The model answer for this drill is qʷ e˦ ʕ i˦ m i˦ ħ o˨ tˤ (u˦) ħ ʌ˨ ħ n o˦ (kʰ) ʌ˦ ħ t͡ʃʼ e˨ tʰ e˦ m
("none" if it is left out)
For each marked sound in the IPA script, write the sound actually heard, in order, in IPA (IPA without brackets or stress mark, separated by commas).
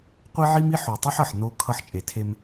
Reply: u˦, kʰ